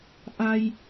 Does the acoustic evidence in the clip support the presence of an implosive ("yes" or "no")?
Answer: no